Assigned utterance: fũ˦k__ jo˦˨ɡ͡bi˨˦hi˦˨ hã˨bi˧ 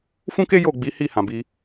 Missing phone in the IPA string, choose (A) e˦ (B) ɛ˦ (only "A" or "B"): A